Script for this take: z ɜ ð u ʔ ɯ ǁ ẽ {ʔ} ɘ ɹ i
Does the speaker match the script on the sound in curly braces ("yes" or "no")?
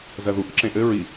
yes